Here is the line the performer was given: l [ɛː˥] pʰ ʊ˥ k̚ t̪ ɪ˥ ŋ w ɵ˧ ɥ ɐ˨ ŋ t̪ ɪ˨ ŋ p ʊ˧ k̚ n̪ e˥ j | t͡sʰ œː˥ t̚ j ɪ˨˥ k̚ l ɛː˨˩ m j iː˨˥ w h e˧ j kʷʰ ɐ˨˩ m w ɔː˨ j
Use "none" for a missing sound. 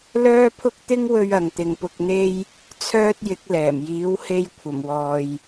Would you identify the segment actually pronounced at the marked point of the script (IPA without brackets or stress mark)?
œː˥